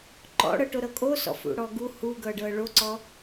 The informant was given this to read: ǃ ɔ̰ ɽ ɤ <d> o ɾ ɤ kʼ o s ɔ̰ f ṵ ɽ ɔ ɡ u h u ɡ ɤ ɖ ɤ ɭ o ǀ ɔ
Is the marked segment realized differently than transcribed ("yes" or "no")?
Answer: yes